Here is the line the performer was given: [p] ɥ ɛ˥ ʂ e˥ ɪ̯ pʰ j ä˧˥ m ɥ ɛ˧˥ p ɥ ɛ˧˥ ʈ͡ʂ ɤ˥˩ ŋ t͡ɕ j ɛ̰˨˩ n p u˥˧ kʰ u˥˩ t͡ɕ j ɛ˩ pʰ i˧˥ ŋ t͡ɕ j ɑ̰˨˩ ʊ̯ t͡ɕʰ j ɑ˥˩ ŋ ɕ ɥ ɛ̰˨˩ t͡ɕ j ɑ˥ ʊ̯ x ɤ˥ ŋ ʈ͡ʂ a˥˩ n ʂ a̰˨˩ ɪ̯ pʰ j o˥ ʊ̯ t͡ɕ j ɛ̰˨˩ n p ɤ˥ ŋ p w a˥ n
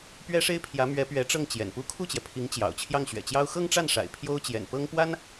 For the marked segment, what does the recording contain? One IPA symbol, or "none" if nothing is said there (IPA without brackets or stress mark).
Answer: p